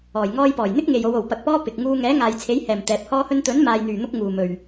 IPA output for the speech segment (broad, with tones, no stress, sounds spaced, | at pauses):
ɔː˨˩ j ŋ ɔː˧ j p ɔː˨˩ j n̪ ɪ˥ k̚ ŋ e˨ j o˨˧ w o˨˩ w p ɐ˨ k̚ p ɔː˧ p ɪ˨ k̚ ŋ uː˧ ŋ ɛː˨˥ ŋ aː˨ j t͡sʰ e˨˥ j h ɛː˨˩ m t̪ ɛː˨˥ p̚ h ɔː˥ h ɵ˥ n t̪ ɵ˨˥ n m aː˨ j n̪ yː˨˩ n̪ ʊ˧ k̚ ŋ uː˨ m ɵ˨ ɥ